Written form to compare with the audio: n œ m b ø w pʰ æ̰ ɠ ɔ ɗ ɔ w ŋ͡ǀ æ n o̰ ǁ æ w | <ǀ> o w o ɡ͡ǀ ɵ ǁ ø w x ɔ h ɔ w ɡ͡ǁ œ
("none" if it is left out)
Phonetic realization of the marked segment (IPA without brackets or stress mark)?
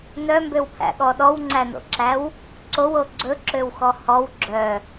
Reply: ǀ